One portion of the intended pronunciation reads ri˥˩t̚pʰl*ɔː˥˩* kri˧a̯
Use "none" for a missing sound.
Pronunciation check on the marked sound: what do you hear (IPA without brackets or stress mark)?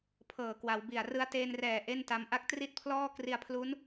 ɔː˥˩